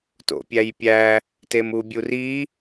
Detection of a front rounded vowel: absent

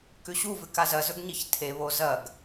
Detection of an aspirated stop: present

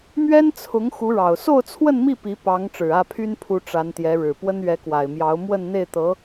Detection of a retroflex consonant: present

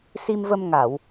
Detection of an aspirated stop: absent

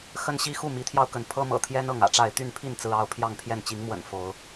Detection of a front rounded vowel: present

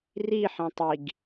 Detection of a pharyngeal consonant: present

